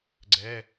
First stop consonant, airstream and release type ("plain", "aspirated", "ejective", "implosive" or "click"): click